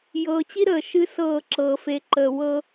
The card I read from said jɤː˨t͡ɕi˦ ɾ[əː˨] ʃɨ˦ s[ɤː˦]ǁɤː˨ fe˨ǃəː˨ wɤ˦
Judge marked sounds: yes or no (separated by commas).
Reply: yes, no